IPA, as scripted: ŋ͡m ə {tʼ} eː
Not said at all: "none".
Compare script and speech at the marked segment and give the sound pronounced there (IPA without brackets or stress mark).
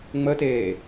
t